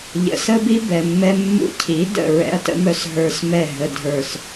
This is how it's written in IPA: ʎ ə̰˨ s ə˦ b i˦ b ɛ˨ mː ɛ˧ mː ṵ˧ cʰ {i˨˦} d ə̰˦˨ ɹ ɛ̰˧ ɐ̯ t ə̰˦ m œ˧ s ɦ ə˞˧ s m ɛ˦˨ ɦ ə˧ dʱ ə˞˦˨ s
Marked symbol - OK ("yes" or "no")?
yes